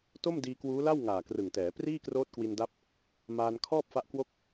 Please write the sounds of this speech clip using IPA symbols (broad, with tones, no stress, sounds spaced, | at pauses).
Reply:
t o˥˩ m d iː˧ k w uː˦˥ l a˥˩ w ŋ aː˨˩ k r ɯ˨˩ ŋ t ɛː˩˦ p r iː˥˩ k r oː˦˥ t̚ k w i˧ n d a˦˥ p̚ | m aː˧ n kʰ ɔː˥˩ p̚ f a˦˥ ʔ k w o˥˩ k̚